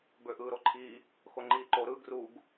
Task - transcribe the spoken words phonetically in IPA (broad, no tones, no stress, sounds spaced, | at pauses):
b ø ʔ ɯː ɾ o ǃʰ i | x o ŋ͡ǃ iː ǃ o ɾ ɯ ɡ r u ɡ